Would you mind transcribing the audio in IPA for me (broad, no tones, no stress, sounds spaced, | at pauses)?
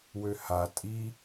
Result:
w ø h a tʼ i